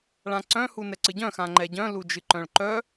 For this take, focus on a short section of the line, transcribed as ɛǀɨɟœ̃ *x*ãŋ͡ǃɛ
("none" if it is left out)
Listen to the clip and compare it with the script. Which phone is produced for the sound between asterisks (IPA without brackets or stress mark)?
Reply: x